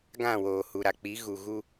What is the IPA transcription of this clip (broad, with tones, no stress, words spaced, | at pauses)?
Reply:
ɡã˦˨woː˨hu˨ ɾa˨k͡pi˨˦ɣu˨ ɣu˦